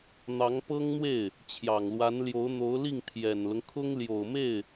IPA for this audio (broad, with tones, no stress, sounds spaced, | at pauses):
n̪ ɑ˧˥ ŋ p ɤ˥ ŋ n̪ w e˥˩ ɪ̯ | t͡ɕʰ j ɑ˨˩ ŋ l w a˧˥ n l j o˧˥ ʊ̯ n̪ o˧˥ ʊ̯ l i˥˩ ŋ t̪ʰ j ɛ˨˩ n l ʊ˦ ŋ kʰ ʊ˥ ŋ l j o˨˩ ʊ̯ m e˥˩ ɪ̯